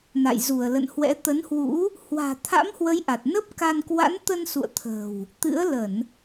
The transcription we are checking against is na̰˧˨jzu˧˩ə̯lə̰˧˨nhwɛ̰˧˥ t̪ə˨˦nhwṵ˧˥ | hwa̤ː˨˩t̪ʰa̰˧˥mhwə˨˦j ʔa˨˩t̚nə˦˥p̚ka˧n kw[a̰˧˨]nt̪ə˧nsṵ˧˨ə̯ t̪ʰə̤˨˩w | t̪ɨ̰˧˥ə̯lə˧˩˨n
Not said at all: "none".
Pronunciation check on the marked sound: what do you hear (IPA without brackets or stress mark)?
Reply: a̰˧˥